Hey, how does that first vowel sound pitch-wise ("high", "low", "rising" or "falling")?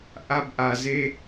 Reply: high